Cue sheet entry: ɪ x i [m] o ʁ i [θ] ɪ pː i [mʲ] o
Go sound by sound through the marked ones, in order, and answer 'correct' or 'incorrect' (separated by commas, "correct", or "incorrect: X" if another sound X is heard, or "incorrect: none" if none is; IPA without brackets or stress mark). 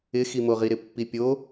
correct, incorrect: ɾ, incorrect: pʲ